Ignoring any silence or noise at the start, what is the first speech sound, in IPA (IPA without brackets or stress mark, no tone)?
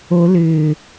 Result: o